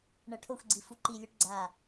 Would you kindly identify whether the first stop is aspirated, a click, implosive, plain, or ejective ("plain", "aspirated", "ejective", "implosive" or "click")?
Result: aspirated